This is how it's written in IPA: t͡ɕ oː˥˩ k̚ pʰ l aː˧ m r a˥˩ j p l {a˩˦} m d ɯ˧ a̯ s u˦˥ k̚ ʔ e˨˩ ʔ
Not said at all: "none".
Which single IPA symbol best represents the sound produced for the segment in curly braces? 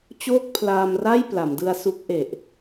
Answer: a˩˦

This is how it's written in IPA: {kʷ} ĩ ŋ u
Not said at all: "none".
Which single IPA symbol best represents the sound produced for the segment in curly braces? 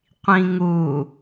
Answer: qʷ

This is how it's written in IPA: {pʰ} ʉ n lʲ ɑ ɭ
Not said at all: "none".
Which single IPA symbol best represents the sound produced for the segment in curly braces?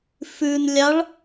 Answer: f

